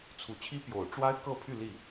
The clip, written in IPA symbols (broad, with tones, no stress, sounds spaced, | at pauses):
t͡sʰ u˨˩ t͡ɕʰ i˥ p j o˨˩ ʊ̯ ʈ͡ʂ w a˥ ɪ̯ k ɤ˥˧ pʰ y˥˧ l i˥˩